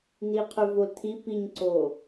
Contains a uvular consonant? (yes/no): yes